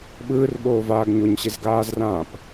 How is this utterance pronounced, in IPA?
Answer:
ɓɯːrɓoːvaːɡ ɲoɲɕezɡaːzrãːp

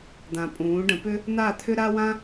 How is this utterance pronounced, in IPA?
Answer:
d̪ã˨pʼũː˨˦ɖə̃˨˦ pʏ˦ | n̪a˦˨t̪ʰʏ˦ɾa˦ wã˦

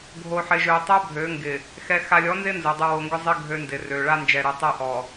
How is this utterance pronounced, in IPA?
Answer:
ɡʱo˨ħɪ˨ʒø˨tˤø˦ bʱø˨˦ŋɡɪ˨ | xɛ˨xa˨lʲɔ˨˦nzɪ˦ nzʊ˨dˤu˨ wo˨ŋɡʏ˦zˤɪ˦ ɡʱø˦ndɪ˨ rø˨ ɭa˦nd͡ʒɛ˨ɾu˨tˤɛ˦ ʔɔ˨

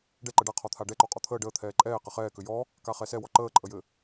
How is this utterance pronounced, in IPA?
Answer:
ɖɛǃə ɖaqʰɔt̪ʰa ɖɛǃɔqʼɔ t̪ʰəː ɖəː t̪ʰɛːǃʼɛː qɘχɛː kʏjɔ | kaχɛsɛwɔ ǃəːǃʼəjɘ

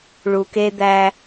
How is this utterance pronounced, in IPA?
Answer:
ɭu˨ke˦d̪æ˦

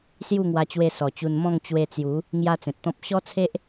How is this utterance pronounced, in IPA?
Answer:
sju˥˧ŋwa˧t͡ɕwe˧ sɔ˨˩t͡ɕu˧n mɔ̃˥˧ŋ t͡ɕwe˧t͡sju˨˦ | ŋja˦t͡sẽ˨t̚t̪ɔ̃˦p̚ ɕɔ˦t͡sʰe˦ʔ

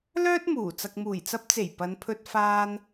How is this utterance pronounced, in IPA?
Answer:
lœː˥t̚muː˨˩ t͡sɐ˨k̚muː˨˩jt͡sɐ˧p̚t͡se˨˩j pɐ˨˧npʰɵ˧t̚ faː˧n

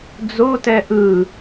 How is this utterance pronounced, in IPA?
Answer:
d͡zotɛ ʔɯ

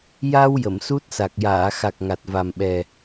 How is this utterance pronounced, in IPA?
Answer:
ja˧w jə˨˩˨msu˦˥t̚sa˨˩k̚ jaː˨˩˨xa˨˩k̚ ŋa˨˩t̚va˨˩mɓɛ˨˩

